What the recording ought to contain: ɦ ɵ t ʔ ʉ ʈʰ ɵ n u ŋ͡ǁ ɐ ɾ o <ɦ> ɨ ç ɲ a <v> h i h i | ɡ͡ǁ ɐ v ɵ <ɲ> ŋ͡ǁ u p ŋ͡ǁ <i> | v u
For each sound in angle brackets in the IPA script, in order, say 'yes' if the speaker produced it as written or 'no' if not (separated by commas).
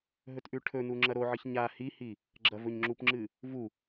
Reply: no, no, yes, no